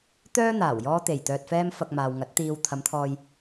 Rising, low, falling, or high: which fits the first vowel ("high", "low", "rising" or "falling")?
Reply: high